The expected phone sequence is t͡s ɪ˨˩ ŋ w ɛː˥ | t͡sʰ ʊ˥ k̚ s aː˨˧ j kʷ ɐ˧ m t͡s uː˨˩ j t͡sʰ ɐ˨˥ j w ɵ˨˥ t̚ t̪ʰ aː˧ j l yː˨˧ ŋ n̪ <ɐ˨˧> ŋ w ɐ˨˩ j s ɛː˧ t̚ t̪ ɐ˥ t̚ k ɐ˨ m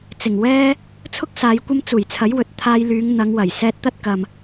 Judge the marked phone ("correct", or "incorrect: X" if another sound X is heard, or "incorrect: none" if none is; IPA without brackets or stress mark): correct